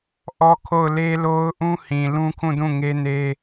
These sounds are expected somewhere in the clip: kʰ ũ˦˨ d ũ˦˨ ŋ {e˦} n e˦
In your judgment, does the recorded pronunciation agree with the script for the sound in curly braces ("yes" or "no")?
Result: yes